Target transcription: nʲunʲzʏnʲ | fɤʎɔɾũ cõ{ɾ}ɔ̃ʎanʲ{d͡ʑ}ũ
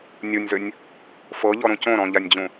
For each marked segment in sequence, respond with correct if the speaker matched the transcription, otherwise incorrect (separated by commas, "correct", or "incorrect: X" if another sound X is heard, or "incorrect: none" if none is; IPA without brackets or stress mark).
correct, correct